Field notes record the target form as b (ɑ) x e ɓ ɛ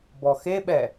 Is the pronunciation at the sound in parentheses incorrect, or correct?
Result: incorrect